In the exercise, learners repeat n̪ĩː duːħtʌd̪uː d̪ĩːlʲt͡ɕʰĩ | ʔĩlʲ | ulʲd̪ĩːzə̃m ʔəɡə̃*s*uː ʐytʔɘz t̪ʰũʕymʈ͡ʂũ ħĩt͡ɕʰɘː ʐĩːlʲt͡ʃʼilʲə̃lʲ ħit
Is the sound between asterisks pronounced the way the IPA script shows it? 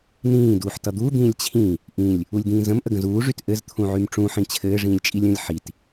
no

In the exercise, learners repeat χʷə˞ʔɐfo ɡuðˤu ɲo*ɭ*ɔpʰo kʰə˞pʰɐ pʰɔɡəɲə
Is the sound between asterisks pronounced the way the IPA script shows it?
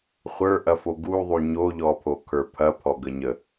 no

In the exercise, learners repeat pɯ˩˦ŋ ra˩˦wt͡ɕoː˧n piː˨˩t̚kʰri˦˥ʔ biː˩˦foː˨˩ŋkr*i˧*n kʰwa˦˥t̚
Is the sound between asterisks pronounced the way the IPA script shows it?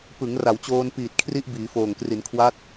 no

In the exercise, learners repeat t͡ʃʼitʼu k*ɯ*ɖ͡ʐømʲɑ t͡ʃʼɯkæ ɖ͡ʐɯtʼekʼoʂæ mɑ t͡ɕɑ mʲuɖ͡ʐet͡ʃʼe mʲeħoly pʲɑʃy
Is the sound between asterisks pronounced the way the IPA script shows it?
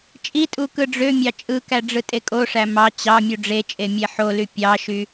yes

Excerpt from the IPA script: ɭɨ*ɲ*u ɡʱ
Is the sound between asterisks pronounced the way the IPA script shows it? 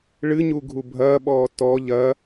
yes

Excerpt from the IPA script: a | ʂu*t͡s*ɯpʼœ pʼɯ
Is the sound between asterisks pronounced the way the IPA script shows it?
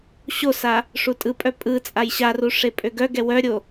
no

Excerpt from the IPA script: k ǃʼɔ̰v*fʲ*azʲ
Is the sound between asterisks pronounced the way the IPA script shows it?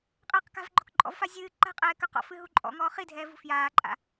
no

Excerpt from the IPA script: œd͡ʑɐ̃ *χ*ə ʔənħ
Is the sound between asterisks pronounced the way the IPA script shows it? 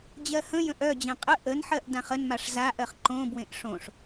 no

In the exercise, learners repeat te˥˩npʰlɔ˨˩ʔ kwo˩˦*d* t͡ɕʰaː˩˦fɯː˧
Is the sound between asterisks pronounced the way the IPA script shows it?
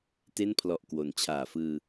no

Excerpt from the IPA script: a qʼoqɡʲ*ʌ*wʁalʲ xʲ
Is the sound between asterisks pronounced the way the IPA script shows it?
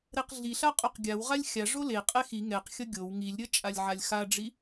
no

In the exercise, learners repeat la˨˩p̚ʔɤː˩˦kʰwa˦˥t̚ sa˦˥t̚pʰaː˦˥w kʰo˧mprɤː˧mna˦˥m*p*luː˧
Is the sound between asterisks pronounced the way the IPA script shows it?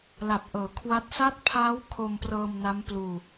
yes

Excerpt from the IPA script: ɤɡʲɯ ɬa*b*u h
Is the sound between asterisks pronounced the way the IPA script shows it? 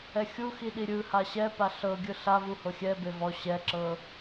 no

